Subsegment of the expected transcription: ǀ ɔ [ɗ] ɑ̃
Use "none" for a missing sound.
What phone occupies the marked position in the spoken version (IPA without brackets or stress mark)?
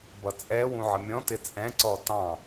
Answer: t